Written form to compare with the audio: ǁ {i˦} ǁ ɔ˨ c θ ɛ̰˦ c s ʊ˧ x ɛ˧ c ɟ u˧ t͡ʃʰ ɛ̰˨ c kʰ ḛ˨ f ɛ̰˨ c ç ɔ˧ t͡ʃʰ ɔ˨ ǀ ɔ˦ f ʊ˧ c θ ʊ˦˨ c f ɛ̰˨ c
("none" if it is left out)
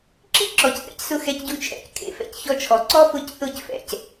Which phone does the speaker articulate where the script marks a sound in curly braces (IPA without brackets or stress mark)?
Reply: i˦